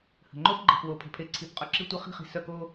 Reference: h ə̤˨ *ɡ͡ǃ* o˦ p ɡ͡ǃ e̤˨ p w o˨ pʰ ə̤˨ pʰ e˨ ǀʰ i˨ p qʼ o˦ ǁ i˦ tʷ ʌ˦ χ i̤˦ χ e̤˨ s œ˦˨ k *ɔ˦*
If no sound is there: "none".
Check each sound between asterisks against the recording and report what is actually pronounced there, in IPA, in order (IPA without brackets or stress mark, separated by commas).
ŋ͡ǃ, o˦